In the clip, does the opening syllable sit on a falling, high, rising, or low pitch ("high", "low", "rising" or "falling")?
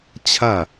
falling